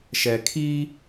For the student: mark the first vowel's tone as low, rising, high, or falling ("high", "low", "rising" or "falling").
low